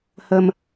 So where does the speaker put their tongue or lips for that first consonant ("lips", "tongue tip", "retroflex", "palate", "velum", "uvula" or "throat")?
throat